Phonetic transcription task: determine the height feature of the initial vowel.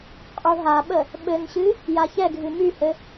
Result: high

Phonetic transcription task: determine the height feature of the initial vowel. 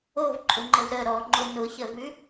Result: mid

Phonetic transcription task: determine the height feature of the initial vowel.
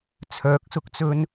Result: mid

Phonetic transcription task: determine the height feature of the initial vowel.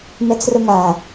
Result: mid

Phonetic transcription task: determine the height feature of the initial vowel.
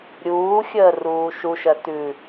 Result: high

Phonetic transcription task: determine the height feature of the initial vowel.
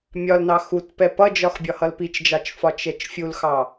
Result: low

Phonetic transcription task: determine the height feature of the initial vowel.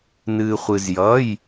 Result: high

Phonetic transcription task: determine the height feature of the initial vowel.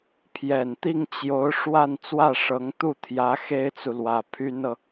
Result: mid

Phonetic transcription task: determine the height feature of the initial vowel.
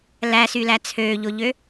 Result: low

